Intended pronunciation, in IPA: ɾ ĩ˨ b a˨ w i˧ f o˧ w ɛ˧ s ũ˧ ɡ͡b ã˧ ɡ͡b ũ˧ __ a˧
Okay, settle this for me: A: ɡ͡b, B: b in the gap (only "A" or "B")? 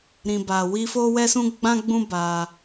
B